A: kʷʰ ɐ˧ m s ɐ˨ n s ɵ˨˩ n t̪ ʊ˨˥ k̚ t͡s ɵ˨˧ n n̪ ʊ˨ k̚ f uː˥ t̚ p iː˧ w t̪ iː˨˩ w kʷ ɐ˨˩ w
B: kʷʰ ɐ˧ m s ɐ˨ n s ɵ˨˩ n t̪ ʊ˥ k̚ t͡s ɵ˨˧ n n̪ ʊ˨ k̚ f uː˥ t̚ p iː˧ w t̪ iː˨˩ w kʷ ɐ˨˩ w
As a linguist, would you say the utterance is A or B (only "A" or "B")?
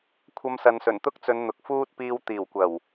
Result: B